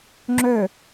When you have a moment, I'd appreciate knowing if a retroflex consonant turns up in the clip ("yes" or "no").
no